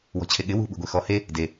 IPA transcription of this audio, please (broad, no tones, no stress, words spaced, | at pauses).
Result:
wɔ̤t͡ɕʰeɠɪ wṳ ɓṳɡʷexɔ he | de